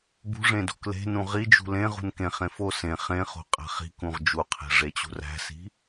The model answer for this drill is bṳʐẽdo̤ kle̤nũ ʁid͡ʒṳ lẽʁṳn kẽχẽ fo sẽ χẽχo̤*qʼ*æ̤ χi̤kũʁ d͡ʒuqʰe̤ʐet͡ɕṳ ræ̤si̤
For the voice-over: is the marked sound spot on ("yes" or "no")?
yes